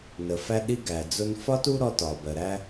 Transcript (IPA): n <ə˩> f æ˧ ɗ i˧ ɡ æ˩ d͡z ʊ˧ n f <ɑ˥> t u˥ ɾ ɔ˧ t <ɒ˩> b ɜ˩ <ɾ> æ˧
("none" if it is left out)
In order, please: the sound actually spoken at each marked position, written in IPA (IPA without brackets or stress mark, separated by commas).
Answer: ə˩, ɒ˥, ɒ˩, ɾ